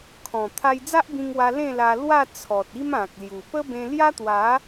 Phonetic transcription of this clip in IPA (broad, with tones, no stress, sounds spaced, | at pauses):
kʰ ɔ̃˨˩ t̪ʰ a˧ j d͡z a˦ ʔ b ĩ˧ ŋ w a˧ l ẽ˥˧ l a˧ l w a˥˧ t͡sʰ ɔ˨ t̚ i˦ m ã˨ k̚ l j u˨˩ p ə˦ b ẽ˧ l j a˦ t̪ w a˨˦